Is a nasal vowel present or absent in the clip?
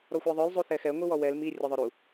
absent